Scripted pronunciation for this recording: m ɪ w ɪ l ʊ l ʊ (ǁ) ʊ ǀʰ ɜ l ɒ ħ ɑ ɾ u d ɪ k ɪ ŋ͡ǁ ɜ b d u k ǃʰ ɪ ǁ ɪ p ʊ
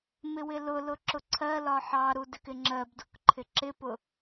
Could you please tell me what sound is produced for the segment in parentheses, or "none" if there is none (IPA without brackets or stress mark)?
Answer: ǁ